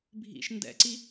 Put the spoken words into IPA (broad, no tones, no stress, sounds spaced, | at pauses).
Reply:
bʱ ḭ ʃ n d ɛ̰ ǀ i